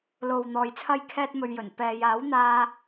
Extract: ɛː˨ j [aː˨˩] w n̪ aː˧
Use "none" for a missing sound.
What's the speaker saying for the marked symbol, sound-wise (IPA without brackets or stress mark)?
aː˨˥